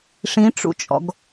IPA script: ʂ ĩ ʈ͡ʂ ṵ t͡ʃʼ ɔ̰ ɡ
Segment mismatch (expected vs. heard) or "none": none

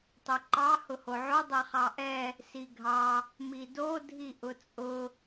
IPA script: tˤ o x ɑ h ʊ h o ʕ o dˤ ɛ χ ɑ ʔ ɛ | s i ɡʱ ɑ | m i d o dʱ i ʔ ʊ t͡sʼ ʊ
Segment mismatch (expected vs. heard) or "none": x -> ǃ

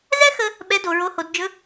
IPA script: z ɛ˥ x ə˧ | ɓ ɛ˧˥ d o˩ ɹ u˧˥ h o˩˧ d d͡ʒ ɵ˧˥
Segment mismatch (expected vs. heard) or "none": u˧˥ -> o˧˥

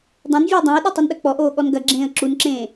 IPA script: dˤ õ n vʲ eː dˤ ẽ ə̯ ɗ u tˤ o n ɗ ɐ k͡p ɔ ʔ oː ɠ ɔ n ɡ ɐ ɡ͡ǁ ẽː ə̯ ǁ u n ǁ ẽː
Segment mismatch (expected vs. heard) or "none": none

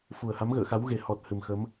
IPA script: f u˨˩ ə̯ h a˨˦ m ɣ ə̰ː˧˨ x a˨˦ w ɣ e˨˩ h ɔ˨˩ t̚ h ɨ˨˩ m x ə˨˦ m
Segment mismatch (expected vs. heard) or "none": none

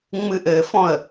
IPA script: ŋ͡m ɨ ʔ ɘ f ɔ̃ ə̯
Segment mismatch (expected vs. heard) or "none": none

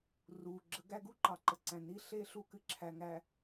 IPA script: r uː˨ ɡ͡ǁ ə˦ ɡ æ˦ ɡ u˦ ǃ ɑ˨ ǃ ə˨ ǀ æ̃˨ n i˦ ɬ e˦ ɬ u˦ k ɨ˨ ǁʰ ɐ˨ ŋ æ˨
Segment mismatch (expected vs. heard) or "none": ɐ˨ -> æ˨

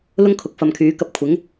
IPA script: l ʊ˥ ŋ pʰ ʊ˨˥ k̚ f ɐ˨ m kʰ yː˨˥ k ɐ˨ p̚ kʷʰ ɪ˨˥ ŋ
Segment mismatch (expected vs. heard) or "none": pʰ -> kʰ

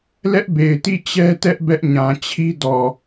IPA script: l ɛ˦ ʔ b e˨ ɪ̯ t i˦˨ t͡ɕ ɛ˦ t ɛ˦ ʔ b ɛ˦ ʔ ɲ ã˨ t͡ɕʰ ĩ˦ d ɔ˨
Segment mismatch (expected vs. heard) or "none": ĩ˦ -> i˦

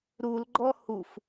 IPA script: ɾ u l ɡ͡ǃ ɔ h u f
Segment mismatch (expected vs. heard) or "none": none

